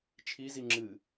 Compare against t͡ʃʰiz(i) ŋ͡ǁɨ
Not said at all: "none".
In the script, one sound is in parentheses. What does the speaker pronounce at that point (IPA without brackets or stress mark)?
i